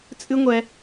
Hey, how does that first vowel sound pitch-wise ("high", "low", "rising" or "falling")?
high